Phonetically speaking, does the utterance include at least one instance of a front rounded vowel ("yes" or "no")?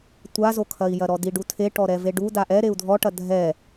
no